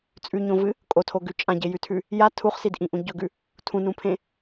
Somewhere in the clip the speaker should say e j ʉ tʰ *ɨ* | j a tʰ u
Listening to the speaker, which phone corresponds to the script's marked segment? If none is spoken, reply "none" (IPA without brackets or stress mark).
ʉ